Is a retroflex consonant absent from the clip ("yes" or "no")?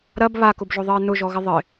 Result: yes